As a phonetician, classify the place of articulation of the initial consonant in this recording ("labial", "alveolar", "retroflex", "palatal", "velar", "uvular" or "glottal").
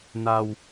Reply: alveolar